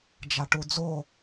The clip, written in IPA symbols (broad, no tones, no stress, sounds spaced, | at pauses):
d͡ʒ a ʈ u d͡z o